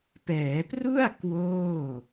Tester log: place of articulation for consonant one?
labial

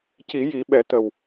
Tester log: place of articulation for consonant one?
palatal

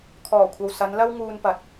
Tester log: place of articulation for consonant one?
velar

